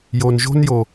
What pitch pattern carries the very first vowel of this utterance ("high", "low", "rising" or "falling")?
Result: low